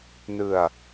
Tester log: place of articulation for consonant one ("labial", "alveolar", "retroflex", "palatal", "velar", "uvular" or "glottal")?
alveolar